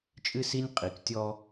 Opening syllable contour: high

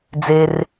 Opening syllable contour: low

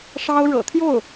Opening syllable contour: high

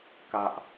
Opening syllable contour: low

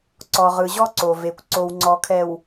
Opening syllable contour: low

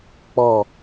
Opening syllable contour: falling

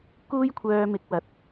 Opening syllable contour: high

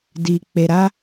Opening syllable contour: low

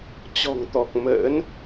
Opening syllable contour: low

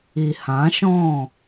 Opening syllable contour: low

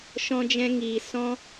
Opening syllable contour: high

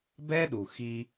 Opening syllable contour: high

